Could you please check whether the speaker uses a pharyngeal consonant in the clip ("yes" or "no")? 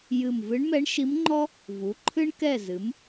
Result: no